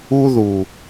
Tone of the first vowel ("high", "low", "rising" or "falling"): high